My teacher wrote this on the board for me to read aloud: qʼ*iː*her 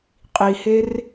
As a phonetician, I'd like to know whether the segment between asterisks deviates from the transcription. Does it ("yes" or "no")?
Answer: yes